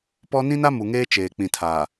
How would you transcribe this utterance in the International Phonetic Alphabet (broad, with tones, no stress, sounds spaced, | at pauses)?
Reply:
p ɔ˦ n ĩ˦ n a˦ m u˨ ŋ eː˦ t͡ʃ eː˨ k͡p ĩ˨ tʰ aː˨